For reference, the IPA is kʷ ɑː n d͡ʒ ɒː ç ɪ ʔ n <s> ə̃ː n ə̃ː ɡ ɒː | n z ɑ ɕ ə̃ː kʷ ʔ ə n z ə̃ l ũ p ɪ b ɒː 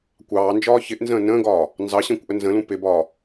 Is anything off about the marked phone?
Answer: yes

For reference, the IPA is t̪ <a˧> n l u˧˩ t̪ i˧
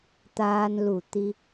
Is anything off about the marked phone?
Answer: yes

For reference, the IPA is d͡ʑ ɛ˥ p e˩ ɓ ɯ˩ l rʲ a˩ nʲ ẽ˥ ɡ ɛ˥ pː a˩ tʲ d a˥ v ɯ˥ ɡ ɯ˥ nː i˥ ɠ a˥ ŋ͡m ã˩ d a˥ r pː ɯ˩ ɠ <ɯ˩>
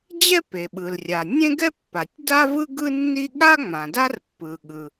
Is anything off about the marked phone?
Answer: no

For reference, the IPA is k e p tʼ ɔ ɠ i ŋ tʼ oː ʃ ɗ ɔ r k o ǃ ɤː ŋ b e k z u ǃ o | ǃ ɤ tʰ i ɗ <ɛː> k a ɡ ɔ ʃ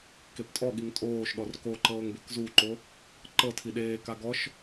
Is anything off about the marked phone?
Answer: yes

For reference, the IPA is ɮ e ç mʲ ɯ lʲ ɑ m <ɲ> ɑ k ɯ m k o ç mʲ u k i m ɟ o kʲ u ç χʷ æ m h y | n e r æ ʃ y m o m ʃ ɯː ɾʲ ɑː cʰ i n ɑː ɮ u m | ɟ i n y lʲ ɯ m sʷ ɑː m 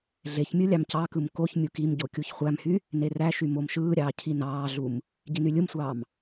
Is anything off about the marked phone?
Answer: yes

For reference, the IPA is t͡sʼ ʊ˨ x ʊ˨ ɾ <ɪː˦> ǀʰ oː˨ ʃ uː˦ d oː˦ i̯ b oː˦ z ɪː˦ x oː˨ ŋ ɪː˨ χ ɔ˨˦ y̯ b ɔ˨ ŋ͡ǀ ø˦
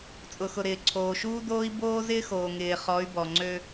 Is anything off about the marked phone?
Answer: yes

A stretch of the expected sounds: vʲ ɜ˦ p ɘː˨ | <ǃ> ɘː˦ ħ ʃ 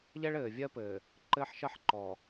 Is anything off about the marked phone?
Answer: no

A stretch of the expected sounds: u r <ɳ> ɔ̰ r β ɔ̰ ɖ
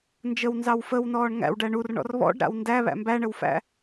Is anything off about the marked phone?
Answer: no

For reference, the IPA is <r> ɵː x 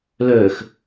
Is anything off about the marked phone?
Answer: yes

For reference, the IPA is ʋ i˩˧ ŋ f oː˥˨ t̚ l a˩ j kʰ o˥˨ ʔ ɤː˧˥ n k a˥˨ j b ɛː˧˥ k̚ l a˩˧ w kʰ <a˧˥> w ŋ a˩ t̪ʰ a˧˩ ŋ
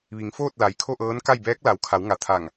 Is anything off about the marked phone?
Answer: yes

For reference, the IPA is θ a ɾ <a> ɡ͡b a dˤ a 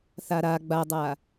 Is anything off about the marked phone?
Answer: no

